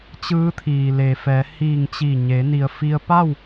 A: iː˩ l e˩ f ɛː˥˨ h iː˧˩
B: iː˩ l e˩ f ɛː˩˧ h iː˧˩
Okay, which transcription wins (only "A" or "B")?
B